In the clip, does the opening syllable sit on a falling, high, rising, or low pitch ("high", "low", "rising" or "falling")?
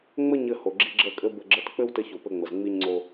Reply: high